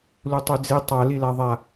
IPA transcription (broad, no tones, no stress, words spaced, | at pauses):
lutˤyd͡zi tˤa lilaðˤa